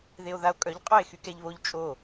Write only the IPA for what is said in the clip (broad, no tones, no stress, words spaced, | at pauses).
ðeo̯ðao̯kʼœʎ qʼoe̯xykɛʎβoʎ t͡ʃʼo